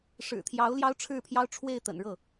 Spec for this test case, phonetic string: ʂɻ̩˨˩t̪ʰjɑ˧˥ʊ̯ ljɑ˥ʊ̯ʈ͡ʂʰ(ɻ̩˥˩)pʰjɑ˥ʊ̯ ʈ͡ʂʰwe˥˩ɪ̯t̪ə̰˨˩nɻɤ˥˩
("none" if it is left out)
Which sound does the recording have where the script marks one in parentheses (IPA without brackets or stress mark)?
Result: ɻ̩˥˩